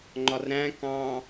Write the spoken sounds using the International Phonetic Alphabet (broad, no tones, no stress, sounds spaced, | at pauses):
ŋ͡ǃ ɒ r ɾ æ̃ k ɑ̃